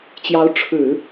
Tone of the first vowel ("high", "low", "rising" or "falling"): rising